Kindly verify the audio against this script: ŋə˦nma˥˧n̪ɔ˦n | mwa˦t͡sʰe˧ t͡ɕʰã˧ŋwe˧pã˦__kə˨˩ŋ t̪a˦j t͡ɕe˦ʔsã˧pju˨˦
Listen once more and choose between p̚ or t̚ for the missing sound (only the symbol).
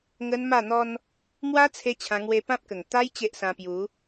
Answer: p̚